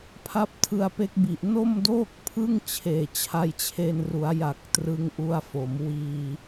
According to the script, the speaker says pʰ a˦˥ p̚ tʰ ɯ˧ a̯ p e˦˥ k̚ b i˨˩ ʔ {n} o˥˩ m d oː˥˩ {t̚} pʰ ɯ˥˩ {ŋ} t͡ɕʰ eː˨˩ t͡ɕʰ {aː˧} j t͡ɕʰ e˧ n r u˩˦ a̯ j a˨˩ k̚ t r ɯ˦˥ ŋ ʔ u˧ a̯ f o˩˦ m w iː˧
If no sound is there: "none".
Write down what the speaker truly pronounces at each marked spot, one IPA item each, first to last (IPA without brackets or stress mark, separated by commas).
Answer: n, k̚, ŋ, a˧